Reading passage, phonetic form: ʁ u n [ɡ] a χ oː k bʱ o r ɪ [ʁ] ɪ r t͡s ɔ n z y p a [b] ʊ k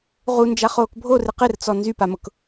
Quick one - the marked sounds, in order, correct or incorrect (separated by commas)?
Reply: incorrect, incorrect, incorrect